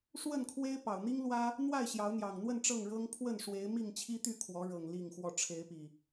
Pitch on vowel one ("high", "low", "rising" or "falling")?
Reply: falling